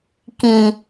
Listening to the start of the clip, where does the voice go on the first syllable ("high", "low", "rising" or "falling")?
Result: low